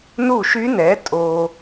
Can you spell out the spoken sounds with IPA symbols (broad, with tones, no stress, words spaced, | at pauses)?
nu˥˨ʃy˦˥nɛ˨˥ tʼo˧